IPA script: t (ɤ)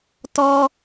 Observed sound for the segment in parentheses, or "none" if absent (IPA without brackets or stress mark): ɔ